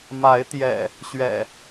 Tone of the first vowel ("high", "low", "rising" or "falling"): rising